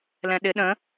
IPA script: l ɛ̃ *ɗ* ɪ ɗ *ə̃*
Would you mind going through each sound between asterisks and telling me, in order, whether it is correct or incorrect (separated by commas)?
correct, correct